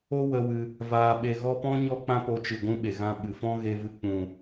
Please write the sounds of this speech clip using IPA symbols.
o˦ w ə˧ w ɨ˧ | v aː˧ ɓ e˧ ɣ ɔ˦ p ɔ̃˦ ɲ ɔ˦ k͡p ã˦ p o˧ t͡ʃ ɨ˨ ɡʷ ũ˦ ɓ e˨ ɣ ã˦ ɓ ɨ˨ f ɔ̃˦ ɣ e˧ v ɨ˧ k͡p ũ˨

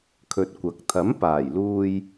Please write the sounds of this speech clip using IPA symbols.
kʰ ɵ˧ t̚ kʷ ɐ˨˥ k̚ t̪ʰ ɐ˨˥ m p aː˨˩ j l uː˧ j

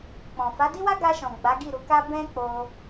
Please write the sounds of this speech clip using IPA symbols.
k͡p ɔ̃˨ f a˨˦ d i˦ w a˦ ɡ a˧ ʃ ɔ̃˨ ɡ͡b a˨˦ ɡ i˦˨ ɾ u˨˦ k a˦ b ɛ̃˦ k͡p o˧

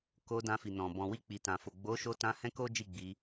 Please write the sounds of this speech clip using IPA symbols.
k o˧ d ã˧ f i˨ n ɔ̃˨ b ɔ̃˨ w i˧ k͡p i˨ t ã˨ f o˨ ɡ͡b o˨˦ ʃ o˧ t ã˧ h ɛ̃˦ k o˦ d͡ʒ i˦˨ ɡ͡b i˧

